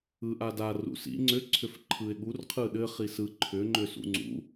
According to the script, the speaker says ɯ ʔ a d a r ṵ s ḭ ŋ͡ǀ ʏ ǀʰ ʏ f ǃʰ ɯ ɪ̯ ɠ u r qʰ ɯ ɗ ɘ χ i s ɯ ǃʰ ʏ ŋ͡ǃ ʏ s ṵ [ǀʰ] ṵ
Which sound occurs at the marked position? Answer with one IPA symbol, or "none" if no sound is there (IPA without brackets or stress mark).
ŋ͡ǀ